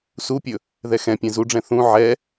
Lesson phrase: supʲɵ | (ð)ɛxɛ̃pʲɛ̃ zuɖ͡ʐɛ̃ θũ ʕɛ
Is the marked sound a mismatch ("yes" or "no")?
no